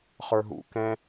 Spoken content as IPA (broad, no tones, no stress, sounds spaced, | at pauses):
χ ə˞ ɦ ṵ k ɛ̃